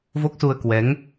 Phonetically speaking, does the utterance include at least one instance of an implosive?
no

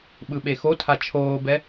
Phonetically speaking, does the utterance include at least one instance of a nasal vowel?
no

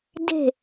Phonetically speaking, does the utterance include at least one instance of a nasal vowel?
no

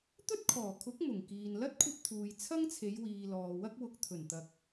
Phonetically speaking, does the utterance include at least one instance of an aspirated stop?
yes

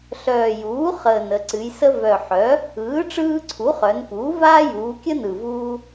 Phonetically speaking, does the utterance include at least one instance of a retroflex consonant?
yes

